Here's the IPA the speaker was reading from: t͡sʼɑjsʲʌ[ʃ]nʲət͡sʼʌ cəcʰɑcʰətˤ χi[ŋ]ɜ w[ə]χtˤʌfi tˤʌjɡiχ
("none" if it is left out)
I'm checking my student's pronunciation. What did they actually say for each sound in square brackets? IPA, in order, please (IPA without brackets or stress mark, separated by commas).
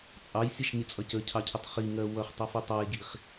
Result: ʃ, ŋ, ʌ